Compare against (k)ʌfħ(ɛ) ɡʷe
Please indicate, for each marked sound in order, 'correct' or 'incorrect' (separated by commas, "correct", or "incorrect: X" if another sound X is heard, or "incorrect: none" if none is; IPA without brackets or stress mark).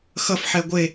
incorrect: x, correct